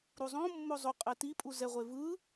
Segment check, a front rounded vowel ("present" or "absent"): absent